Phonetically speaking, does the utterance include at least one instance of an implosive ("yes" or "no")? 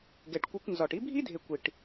no